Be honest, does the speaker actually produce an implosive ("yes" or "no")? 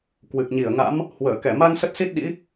yes